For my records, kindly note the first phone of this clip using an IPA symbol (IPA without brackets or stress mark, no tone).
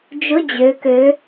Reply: d͡ʒ